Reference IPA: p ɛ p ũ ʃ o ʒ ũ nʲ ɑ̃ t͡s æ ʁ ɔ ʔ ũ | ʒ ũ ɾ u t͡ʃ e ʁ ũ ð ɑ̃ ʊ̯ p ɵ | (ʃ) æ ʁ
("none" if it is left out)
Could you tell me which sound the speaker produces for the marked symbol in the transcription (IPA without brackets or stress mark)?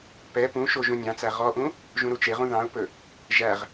ʒ